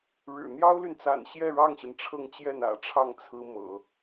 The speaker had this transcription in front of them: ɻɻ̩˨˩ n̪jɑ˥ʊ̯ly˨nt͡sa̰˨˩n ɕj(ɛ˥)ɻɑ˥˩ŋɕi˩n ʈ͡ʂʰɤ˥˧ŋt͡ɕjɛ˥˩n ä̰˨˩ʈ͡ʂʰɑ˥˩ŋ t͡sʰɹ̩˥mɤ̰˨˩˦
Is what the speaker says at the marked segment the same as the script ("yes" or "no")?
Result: no